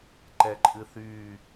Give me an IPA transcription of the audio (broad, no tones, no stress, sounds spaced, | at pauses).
ǃ ɛ ǃʼ ɨ θ yː